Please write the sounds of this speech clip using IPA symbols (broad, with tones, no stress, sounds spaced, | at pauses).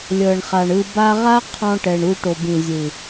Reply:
lʲ ɤ˨ ɳ χ a˨ ɳ ɯ˧ b a˦ ʁ a˦ qʰ ɔ̃˧ ʈ ɛ˨ ɳ u˧ ʈ o˨ b ĩ˨ zʲ ɯ˨